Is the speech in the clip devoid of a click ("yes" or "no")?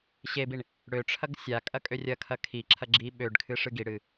no